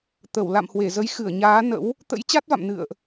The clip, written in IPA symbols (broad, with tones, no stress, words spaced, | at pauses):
t̪ə˧˩w la̰˧˨mhwe˧˩zə˨˦jxɨ˧˩ə̯ ɲaː˨˦ nə̰˧˥w | t̪ə̰˧˥jt͡ɕa˦˥t̚va̰˧˨m nɨ̰˧˨ə̯ʔ